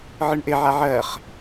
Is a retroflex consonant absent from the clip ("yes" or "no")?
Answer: no